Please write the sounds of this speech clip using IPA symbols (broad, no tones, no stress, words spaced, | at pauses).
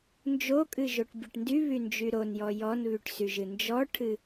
nd͡ʒokʼɨʒoʈ bʲɨʈndy βynd͡ʒyɾonjɔ jɔnβyʈsyʒɨ nd͡ʒɔʈʰɨ